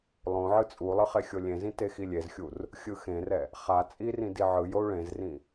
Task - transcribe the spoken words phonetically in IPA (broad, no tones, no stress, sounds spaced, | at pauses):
lˠ õ ʕ ɯ t͡sʼ u lˠ ɯ χ e xʲ o lʲ ẽ z ĩ t e x i lʲ e z xʲ u r | xʲ ɯ x ẽ r ɛ | χ a t͡sʼ i r ĩ d i ʕ ɯ j o u̯ ɭ ẽ z r ĩ